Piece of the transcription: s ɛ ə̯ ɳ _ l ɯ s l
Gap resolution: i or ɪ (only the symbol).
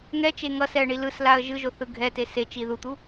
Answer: i